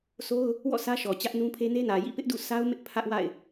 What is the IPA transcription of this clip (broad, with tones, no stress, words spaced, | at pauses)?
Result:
so˦ʊ̯ | wɔ̰˦˨ sʰä˦ʃɔ˨ t͡ɕä˦ʔnũ˦pʰe˦ ne˦nä˨ jḭ˦˨pɪ˦ʔdṵ˦˨ sa˦ʊ̯mɪ˦ʔ pʰä˦ʔwa̰˦˨ɪ̯